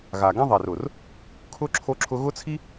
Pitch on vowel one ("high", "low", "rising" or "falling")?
low